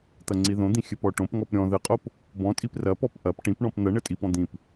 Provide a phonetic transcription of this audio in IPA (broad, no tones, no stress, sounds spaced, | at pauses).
t̪ ɐ ŋ͡ǀ i ð õ d̪ ĩ xʲ ɘ p ɔ ʈ õ p ŋ ɔ p ɾʲ ɔ̃ ð ɘ qʼ o p | b ɔ̃ tʼ i p r ɐ p ɔ p ʔ ɐ p ʈ ĩ p ɳ ɔ̃ p n̪ ɐ ɳ ɘ tʼ i p ɔ̃ d̪ ĩ p